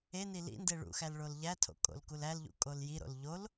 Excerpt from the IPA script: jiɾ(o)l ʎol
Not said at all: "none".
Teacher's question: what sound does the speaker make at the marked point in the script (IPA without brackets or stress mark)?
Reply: o̰